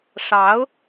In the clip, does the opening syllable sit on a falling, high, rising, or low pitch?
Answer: rising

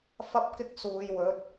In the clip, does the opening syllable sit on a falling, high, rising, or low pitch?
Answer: high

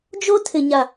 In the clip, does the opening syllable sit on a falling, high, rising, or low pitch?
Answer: high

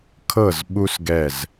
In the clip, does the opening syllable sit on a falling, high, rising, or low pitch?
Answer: falling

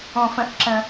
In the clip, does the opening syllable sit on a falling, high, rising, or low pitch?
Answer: low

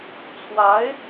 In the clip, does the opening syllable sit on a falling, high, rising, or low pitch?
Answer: rising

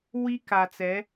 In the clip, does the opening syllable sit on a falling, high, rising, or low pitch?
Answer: high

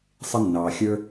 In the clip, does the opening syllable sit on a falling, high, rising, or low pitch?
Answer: high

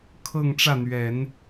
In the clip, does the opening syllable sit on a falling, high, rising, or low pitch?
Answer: falling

